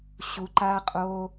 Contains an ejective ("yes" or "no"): yes